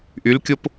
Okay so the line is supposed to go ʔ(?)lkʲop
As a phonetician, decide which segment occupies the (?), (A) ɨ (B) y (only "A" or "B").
B